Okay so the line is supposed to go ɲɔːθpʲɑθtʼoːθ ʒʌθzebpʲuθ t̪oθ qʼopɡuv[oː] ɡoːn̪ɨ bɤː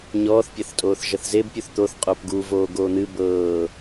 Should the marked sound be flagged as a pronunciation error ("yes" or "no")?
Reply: no